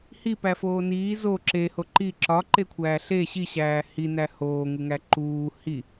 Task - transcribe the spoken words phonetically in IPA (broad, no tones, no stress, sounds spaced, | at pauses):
h i p æ f oː n iː z o ǁ e h o ǃ i ǁ ɒ ǃ e kʷʰ æː ɬ e ɕ i ɕ æː h i n æ h oː ŋ u ŋ æ ǃ uː h i